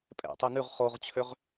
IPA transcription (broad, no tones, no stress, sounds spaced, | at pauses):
pʼ ɛ̰ tˤ ø n ʉ ʁ χ o ʁ t͡ɕʰ ø ʁ